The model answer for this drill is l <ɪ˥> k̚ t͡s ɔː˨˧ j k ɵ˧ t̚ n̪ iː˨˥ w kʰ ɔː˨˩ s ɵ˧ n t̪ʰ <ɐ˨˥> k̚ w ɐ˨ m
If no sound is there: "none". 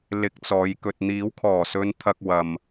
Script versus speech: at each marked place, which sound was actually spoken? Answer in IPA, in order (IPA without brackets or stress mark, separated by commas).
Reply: ɪ˧, ɐ˧